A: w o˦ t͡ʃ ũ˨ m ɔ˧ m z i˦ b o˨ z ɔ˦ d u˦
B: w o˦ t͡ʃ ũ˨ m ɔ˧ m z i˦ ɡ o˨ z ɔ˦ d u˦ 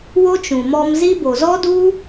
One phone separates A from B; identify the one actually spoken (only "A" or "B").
A